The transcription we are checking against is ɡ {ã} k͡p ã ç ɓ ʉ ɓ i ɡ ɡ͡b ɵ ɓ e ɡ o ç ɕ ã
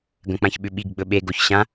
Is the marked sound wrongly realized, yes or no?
yes